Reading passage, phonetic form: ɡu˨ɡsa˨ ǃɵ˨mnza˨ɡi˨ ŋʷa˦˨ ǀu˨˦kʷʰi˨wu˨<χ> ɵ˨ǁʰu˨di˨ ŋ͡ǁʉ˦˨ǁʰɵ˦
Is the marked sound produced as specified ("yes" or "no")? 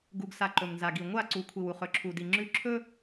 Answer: yes